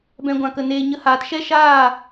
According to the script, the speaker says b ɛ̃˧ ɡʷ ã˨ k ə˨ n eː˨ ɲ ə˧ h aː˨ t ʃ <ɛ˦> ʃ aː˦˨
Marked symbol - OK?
yes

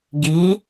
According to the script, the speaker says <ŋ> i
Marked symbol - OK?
no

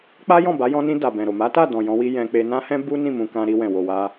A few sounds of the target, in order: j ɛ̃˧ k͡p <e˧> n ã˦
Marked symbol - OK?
yes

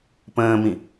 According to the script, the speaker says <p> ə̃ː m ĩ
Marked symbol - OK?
yes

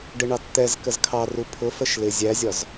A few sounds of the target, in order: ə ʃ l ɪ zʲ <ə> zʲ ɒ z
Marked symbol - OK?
no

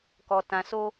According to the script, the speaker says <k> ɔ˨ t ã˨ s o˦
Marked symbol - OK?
yes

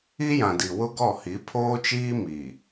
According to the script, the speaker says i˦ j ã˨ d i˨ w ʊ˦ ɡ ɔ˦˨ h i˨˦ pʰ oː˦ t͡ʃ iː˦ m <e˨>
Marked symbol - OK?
no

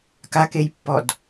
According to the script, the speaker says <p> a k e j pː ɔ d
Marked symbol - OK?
no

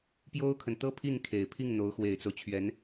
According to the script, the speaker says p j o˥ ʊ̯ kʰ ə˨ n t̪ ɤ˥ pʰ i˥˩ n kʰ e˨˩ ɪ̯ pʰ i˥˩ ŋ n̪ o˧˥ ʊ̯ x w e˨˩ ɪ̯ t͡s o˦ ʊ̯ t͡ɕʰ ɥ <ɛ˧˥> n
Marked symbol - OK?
yes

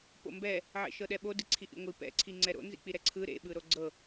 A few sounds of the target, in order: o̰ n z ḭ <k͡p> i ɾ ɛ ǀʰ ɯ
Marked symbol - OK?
yes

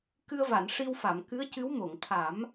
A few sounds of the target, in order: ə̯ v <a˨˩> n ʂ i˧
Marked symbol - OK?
no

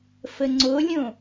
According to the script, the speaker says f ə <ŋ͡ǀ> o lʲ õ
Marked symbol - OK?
yes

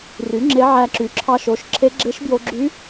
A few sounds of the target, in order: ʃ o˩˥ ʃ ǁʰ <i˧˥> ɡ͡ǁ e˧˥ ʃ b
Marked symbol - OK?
no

